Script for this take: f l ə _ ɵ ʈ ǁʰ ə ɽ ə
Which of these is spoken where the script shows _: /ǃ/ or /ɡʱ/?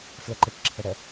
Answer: ǃ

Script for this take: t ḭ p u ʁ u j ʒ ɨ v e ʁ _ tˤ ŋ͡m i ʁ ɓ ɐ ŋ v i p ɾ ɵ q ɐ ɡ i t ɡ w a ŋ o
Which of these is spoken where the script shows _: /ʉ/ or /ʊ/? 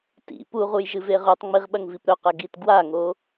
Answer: ʉ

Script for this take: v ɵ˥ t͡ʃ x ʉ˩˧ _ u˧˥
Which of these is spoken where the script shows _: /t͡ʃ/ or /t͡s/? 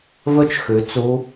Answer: t͡s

